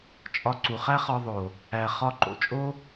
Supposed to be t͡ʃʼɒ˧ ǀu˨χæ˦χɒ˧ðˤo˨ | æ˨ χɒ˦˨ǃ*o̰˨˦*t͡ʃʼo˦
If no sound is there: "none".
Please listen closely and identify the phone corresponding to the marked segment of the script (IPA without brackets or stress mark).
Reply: o̰˨